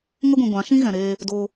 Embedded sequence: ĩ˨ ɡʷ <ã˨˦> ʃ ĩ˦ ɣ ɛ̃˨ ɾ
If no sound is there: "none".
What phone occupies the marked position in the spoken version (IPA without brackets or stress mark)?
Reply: ã˨˦